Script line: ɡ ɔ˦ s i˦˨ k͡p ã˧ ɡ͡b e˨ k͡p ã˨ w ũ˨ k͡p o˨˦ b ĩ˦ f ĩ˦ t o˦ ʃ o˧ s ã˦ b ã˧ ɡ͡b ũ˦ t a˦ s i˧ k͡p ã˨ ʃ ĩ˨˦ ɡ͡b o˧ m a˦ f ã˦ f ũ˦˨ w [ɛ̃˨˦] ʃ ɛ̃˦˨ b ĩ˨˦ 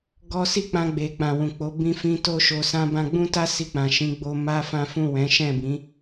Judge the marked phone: correct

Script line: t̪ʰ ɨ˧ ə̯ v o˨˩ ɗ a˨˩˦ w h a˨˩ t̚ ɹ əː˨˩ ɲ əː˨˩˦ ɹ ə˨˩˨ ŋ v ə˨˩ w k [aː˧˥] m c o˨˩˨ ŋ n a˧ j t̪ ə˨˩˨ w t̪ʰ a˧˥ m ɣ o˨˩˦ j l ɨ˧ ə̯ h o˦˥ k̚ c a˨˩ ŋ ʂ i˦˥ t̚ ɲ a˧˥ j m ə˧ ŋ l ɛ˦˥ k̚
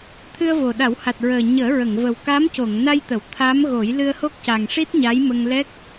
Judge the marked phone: correct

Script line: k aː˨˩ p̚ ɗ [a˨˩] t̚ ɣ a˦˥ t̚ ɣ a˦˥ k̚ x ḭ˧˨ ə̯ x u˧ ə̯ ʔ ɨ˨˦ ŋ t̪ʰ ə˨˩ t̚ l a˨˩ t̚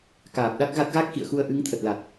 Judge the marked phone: incorrect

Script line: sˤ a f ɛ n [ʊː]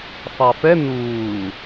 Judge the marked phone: incorrect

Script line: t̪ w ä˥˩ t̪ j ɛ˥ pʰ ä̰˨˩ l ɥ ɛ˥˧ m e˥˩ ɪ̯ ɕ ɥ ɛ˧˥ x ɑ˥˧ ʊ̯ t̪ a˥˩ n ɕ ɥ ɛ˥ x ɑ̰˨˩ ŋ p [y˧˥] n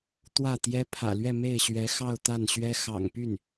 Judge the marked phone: incorrect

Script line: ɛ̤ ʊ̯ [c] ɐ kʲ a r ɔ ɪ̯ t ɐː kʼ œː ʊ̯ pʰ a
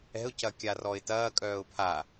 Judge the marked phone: correct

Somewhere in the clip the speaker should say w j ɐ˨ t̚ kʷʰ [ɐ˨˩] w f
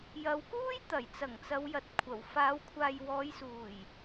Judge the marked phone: correct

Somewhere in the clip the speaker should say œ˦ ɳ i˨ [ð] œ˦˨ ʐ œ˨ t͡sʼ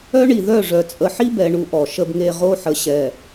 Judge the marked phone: correct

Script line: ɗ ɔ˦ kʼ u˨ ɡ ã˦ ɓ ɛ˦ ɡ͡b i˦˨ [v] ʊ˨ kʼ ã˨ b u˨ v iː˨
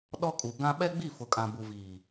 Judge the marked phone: incorrect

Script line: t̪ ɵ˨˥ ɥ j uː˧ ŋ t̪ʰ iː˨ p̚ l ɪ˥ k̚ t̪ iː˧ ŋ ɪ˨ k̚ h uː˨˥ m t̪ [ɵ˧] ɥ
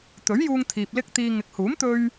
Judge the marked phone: correct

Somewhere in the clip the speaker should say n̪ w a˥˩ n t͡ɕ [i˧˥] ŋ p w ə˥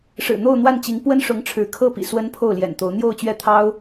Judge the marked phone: correct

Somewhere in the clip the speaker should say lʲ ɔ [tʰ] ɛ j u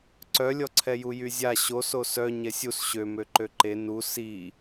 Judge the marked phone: incorrect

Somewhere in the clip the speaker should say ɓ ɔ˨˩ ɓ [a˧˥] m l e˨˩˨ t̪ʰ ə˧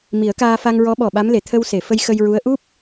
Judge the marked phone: correct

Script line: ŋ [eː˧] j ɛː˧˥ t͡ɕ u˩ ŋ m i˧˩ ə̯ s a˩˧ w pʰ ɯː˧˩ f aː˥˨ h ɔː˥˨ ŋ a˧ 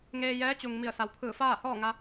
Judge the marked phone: correct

